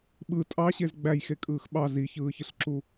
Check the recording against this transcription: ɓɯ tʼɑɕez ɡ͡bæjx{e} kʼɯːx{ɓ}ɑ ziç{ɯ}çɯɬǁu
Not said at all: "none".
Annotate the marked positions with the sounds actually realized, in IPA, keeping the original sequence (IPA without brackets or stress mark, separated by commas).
e, ɓ, ɯː